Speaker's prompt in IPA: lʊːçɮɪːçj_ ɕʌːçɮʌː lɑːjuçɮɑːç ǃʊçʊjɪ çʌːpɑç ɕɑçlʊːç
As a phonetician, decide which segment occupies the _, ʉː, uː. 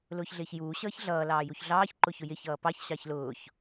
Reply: uː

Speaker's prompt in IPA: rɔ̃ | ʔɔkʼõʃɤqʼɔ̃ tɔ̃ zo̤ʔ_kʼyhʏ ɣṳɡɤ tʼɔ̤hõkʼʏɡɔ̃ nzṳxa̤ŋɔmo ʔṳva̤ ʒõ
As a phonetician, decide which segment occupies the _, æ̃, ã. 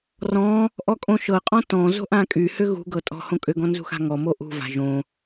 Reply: ã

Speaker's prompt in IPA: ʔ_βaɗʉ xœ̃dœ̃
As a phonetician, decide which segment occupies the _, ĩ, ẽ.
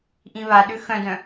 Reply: ĩ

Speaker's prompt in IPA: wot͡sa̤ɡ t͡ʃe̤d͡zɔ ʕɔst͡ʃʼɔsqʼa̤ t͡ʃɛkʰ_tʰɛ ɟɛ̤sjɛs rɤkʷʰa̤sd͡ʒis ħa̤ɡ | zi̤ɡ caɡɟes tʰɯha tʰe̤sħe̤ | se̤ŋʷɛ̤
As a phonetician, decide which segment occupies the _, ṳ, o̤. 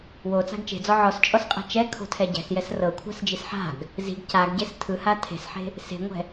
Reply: o̤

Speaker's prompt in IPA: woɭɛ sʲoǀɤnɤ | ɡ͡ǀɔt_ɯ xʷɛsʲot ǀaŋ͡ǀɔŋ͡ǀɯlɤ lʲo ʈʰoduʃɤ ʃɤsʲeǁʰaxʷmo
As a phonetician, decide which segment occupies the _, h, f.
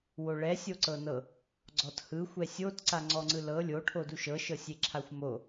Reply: h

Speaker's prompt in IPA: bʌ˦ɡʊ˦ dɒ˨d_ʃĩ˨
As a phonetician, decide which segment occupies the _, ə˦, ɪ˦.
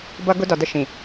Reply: ə˦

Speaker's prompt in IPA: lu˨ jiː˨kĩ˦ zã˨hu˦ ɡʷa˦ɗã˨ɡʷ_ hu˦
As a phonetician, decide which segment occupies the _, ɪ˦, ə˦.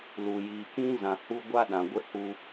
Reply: ɪ˦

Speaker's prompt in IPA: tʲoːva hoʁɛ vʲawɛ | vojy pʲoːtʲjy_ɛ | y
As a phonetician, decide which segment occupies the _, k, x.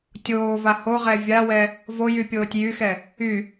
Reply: x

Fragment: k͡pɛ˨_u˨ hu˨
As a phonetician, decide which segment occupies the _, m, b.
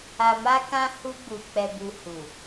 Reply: b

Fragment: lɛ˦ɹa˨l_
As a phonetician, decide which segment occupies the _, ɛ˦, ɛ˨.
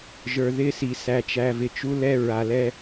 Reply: ɛ˦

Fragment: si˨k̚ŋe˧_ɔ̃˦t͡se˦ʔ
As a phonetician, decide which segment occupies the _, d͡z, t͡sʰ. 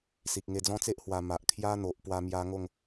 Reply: d͡z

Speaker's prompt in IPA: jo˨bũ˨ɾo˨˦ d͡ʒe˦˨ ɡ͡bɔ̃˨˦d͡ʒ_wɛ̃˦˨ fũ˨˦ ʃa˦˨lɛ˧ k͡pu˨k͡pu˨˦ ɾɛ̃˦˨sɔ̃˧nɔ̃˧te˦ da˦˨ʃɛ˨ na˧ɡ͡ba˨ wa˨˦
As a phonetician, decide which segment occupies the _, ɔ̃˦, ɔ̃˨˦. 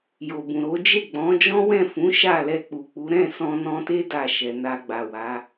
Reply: ɔ̃˦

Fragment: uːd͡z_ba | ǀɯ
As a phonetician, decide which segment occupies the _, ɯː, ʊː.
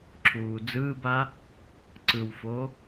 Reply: ɯː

